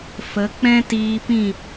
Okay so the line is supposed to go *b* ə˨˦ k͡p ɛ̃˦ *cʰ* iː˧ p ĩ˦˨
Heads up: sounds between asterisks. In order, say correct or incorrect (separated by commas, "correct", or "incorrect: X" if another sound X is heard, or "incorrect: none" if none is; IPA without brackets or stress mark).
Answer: incorrect: f, incorrect: t